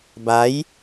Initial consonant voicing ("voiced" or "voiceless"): voiced